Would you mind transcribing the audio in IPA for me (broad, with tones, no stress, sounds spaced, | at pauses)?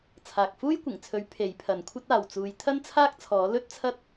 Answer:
t͡sʰ aː˨ k̚ f uː˥ j kʷ ɪ˨˩ ŋ t͡sʰ ɵ˨˥ ɥ pʰ e˨˥ j pʰ ɐ˨ n kʷʰ ɐ˥ t̚ aː˨ w t͡s uː˨˧ j t̪ʰ ɐ˥ n t͡sʰ aː˥ k̚ t͡sʰ ɔː˨˥ l ɵ˥ t̚ t͡sʰ ɐ˥ t̚